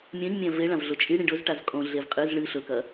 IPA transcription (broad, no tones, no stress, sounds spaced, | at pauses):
mʲ ɐ̃ ɲ mʲ ã v e ɭ ã v ɮ o t͡ʃʼ i ɽ ĩ ɖ ɵ z ʈ a z kʼ õ ɮ e v qʼ ɨ z ɭ ɨ ɬ ɵ k ɐ